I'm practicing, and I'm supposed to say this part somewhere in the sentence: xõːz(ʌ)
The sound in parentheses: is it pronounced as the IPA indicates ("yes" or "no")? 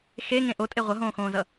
yes